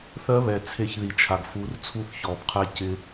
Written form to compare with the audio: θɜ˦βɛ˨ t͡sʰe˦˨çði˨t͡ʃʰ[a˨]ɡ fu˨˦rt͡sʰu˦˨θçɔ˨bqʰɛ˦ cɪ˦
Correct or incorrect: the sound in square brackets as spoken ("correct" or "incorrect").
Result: correct